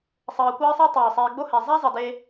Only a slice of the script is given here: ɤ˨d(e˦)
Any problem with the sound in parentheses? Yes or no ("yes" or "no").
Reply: no